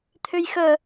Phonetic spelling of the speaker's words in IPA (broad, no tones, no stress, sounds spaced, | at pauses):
t̪ʰ ø j x œ